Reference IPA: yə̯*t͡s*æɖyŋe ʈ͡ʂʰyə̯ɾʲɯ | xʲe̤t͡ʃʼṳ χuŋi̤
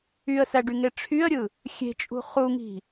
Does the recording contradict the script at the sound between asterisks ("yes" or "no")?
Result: yes